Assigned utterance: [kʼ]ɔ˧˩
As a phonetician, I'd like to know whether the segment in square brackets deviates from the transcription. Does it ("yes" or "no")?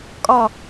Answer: no